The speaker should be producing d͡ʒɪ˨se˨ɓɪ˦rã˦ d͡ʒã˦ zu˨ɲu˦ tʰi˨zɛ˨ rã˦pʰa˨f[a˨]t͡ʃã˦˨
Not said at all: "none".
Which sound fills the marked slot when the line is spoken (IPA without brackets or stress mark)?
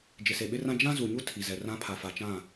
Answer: a˨